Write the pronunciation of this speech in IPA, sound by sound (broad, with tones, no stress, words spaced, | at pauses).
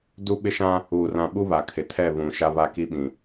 du˦ɓɪ˦ʃã˦ | uː˨rã˨ ɓu˦βa˨kʰɪ˨ tʰɛ˦˨βũ˨ ʃa˦βa˦ki˦ɓĩ˨